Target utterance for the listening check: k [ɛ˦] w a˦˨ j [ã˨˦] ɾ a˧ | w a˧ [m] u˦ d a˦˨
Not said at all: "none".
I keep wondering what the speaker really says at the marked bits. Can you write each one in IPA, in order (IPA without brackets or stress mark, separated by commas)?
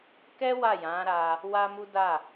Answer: ɛ˦, ã˨˦, m